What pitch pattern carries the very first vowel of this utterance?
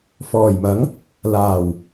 low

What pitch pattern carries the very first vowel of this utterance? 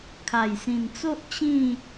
low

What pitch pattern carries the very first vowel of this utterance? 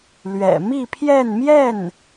low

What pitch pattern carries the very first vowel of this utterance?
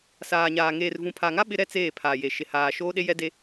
low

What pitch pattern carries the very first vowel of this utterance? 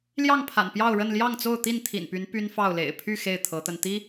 falling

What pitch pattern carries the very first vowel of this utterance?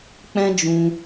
high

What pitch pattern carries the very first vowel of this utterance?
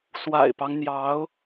low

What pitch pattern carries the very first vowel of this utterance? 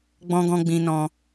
low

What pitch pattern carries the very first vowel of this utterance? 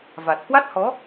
low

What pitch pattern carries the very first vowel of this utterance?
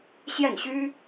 falling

